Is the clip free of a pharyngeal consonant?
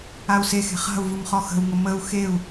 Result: yes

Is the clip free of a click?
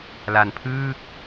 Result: yes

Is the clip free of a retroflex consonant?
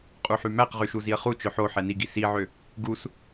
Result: yes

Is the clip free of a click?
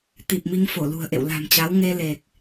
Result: yes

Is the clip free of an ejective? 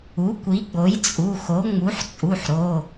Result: no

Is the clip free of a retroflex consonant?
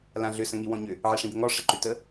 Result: no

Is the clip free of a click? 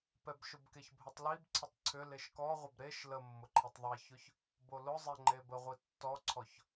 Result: no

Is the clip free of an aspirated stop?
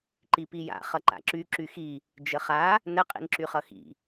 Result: yes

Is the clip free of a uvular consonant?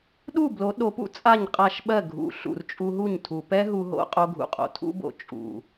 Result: no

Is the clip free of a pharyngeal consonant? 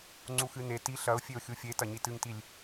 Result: yes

